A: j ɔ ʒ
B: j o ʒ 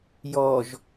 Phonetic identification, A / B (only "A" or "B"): A